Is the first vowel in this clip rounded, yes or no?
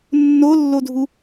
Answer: yes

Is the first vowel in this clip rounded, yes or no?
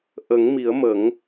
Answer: no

